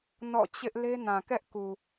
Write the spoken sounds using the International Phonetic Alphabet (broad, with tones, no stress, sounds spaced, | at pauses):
n ɔ̰˦˨ t͡ɕ ɪ˦ ʔ l e˦ n ã˨ k ɛ˦ ʔ k u˨